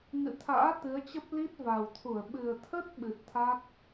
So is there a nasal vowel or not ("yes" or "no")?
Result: no